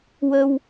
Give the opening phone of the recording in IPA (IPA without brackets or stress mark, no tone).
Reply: w